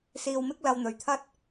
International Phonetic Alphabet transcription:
s iː˧ w m ɪ˥ k̚ l ɐ˧ w n̪ ɵ˨˧ ɥ t̪ʰ ɐ˥ t̚

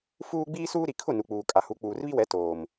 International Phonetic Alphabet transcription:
f uː˦ ɡ͡b iː˦ s uː˦ ɾ i˨ kʰ ʊ˦˨ n u˨ k͡p uː˨ kʼ a˨ h u˨˦ k͡p uː˨ r β i˦ w ɛ˨˦ t oː˨ m

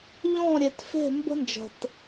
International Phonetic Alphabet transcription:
ʎ ɔ̃˦˨ ɾʲ e˨ t f e̤˦˨ m b ə̤˦ n d͡ʒ ə̤˨ t

